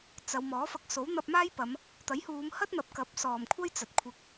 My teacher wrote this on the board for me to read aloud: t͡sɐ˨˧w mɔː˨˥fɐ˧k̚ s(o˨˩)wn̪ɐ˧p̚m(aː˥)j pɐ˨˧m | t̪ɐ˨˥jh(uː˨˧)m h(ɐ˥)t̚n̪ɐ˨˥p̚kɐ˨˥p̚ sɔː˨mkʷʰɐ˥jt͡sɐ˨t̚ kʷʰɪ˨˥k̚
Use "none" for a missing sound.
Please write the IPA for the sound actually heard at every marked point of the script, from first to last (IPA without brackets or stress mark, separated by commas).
o˨˥, aː˥, uː˨˧, ɐ˥